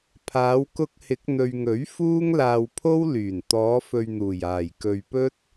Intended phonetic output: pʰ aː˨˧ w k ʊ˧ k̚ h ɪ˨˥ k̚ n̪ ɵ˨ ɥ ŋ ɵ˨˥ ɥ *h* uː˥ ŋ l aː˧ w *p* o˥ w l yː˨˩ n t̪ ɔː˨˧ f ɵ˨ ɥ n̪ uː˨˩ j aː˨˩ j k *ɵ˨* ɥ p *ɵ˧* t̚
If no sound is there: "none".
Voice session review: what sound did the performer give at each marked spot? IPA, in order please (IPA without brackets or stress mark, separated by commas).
f, pʰ, ɵ˨, ɵ˥